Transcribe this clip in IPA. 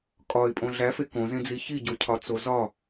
kʼ ɒ ɪ̯ pʼ õ ɮ æ f e k õ z ẽ d͡z i ç i ɟ o cʰ ɒ t͡s o z ɒ

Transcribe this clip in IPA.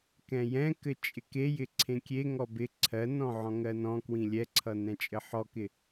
k ɛ̃ j ɛ̃ k ɘ t͡ʃʼ ɪ k e j ɪ ǀʰ ẽ kʲ e ŋ ɔ b ɪ ǀʰ ɜ n ɔ̃ ʕ ɔ̃ ŋ ɜ n ɔ̃ k w ĩ lʲ ɛ ǀʰ ʌ n ɛ̃ t͡ʃʼ ɘ ħ ɔ k ɪ

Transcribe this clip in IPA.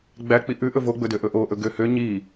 ɡ͡b æ k͡p i ʔ ʉ ʔ ɵ v o ɡ͡b ɵ d ø ʔ ɵ ʔ o ʔ ɵ ɡ ø h ø ɲ i

